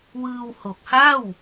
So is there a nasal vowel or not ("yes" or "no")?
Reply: no